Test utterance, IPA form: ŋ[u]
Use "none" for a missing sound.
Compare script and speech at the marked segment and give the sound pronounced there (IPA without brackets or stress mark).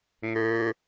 ø